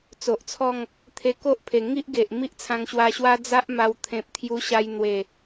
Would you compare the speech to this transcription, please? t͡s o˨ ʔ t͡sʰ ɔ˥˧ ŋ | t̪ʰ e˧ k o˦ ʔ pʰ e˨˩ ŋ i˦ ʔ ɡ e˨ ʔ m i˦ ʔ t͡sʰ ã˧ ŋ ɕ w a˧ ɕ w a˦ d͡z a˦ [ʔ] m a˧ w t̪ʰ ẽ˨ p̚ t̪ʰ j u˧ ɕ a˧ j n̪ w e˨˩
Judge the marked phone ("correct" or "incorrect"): correct